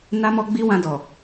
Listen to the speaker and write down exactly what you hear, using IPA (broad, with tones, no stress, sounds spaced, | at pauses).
n a˦ m ɔ˦ ɡ͡b i˦ w ã˧ d ɔ˨